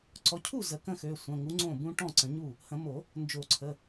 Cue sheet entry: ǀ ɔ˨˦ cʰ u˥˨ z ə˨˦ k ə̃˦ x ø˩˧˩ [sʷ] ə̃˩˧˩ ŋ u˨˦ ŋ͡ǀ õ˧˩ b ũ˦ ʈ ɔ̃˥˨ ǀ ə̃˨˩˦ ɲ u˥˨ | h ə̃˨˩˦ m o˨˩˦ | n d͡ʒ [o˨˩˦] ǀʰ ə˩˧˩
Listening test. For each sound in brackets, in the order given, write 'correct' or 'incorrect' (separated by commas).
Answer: correct, correct